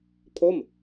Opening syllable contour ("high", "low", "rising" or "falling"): falling